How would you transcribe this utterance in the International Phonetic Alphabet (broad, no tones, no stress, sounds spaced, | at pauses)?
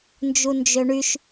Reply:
n d͡ʒ u n d͡ʒ ø ɳ y ʃ